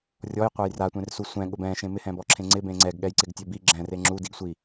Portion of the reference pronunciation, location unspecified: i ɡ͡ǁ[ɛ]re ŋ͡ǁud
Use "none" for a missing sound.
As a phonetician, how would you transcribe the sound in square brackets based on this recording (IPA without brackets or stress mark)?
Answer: ɛ̃